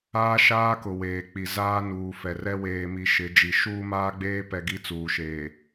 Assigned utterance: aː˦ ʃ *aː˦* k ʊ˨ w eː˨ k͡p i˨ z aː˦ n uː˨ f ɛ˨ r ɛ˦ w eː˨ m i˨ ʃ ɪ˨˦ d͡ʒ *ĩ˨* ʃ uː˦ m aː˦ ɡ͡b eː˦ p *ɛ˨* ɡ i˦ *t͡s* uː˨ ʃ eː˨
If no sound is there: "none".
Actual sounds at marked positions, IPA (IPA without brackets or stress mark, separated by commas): aː˦, i˨, ɛ˨, t͡s